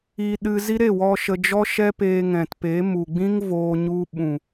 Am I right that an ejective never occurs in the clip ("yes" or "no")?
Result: yes